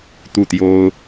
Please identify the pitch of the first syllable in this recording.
falling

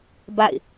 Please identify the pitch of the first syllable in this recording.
falling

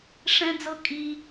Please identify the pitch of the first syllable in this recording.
high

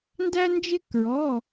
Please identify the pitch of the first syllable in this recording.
high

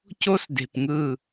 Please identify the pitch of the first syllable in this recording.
high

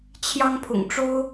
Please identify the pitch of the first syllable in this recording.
high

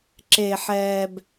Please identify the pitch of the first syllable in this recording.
low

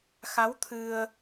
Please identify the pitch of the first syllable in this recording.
rising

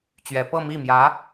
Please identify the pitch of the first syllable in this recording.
rising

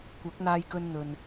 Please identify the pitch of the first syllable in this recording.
rising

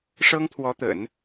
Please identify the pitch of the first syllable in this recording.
high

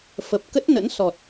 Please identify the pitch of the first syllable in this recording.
low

